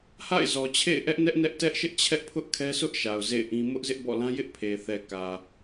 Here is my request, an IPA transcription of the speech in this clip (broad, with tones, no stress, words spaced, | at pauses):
ha̰˦˨ɪ̯zɔ˨t͡ɕʰḛ˦˨ɪ̯ ʔɛ˦ʔnɛ˦ʔ nɛ˦ʔ tɛ˦ʔʃɪ˦ʔ t͡ɕʰɛ˦ʔpʰʊ˦ʔ kʰɛ˦sʰʊ˦ʔʃa˨ʊ̯ zḛ˦˨ɪ̯ʔĩ˦ mʊ˦ʔzɪ˦ʔbɔ̰˦˨ lã˦jɪ˦ʔ pʰe˨ θɛ˨kä˨